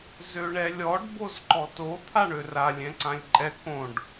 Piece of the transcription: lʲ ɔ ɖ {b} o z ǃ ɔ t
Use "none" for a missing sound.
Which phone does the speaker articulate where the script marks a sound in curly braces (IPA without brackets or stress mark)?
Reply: b